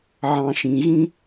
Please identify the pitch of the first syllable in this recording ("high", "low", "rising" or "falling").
low